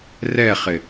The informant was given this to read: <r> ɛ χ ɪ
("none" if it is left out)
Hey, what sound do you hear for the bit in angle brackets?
r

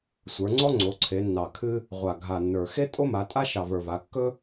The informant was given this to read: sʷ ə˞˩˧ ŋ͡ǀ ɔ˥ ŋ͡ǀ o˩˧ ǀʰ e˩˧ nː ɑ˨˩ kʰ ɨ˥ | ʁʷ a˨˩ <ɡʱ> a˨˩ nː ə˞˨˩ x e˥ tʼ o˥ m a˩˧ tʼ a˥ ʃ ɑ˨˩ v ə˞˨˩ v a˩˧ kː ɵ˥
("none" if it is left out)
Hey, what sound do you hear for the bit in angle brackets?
ɡʱ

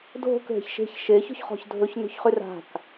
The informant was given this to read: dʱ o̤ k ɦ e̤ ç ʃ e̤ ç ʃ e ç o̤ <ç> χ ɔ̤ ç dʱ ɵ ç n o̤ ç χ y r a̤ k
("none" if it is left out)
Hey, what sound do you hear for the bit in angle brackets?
ç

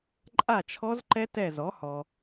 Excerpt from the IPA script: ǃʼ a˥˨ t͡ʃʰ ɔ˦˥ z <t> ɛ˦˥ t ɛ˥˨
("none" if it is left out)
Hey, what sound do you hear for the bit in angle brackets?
ǃ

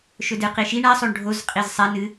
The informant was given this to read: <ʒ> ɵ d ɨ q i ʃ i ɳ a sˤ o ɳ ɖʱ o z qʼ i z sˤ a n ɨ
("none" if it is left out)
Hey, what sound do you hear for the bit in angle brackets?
ʃ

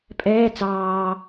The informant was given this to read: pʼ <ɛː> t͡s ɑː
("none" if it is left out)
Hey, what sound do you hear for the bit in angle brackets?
ɛː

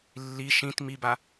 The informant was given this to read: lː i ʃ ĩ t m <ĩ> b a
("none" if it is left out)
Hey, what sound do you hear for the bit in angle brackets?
i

